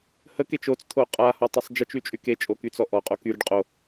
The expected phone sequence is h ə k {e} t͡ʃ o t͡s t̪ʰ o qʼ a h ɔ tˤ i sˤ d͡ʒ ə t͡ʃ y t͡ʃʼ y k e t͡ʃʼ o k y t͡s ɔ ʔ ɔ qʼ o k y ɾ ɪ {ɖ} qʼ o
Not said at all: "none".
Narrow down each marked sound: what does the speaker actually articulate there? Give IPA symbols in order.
e, ɖ

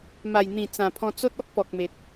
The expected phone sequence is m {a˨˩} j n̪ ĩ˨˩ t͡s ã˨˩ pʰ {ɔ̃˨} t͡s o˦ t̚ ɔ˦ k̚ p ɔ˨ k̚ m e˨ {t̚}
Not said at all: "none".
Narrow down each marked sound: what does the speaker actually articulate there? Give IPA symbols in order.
a˨˩, ɔ̃˧, t̚

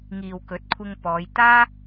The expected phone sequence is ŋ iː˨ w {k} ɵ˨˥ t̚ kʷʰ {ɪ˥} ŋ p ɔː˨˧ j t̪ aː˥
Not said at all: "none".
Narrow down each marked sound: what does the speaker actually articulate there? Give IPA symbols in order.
k, ɪ˧

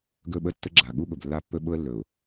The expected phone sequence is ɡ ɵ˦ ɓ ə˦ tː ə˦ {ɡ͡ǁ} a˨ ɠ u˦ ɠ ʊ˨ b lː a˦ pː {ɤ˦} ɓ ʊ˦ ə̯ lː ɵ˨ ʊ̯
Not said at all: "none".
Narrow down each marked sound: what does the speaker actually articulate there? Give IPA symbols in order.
ɡ͡ǁ, ɵ˦

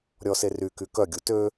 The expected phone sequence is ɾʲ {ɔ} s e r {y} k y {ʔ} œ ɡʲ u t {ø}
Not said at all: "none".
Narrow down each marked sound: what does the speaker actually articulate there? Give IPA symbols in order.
ɔ, y, k, ø

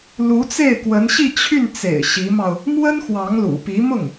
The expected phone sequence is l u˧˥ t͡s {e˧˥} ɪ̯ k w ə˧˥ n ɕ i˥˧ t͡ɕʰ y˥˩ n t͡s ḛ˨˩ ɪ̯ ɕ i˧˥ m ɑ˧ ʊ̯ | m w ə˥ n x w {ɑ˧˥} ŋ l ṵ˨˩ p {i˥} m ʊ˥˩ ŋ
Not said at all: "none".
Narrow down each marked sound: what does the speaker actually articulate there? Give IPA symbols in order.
e˥˩, ɑ˧˥, i˧˥

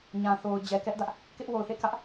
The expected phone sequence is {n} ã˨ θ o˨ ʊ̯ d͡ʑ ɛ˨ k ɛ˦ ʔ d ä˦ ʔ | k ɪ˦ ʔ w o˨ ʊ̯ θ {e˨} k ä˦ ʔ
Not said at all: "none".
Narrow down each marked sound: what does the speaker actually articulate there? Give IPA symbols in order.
ɲ, ḛ˦˨

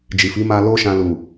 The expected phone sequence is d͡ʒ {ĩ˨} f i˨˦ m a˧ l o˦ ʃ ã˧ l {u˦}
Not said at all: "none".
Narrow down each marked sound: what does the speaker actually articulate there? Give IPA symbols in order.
i˨, u˨

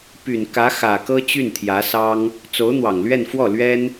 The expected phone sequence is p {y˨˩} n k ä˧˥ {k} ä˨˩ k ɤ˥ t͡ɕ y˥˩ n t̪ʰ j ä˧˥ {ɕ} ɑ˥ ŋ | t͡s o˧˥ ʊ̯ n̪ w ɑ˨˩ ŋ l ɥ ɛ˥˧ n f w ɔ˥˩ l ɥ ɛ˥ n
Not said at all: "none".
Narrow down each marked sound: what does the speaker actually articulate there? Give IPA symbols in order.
y˨˩, x, s

